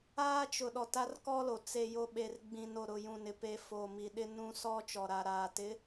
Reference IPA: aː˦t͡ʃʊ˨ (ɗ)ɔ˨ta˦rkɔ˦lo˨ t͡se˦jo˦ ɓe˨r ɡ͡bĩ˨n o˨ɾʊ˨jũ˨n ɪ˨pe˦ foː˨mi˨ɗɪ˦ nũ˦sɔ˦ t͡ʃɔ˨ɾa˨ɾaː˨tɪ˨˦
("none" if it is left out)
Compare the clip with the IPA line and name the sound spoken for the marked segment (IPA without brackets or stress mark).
ɗ